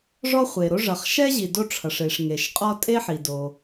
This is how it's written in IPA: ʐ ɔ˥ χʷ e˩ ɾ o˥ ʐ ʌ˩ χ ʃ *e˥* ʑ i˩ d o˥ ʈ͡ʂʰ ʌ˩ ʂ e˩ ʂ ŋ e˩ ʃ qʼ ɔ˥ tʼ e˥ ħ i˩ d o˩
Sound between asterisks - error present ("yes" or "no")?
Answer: yes